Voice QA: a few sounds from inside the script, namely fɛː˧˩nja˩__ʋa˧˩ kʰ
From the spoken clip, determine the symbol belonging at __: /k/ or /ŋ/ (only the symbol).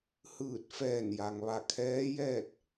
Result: ŋ